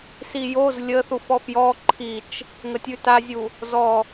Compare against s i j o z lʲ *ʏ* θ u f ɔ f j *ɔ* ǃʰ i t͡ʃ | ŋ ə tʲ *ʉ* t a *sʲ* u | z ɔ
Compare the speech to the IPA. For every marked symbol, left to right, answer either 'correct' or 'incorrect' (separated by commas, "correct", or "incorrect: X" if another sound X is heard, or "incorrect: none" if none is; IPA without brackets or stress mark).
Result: incorrect: ə, correct, correct, incorrect: zʲ